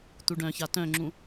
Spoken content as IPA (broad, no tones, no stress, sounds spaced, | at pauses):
t̪ u ɖ œ̃ ç a t œ̃ ŋ͡ǁ ũ